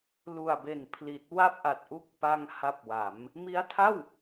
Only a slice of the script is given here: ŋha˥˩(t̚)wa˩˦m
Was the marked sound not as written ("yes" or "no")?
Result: yes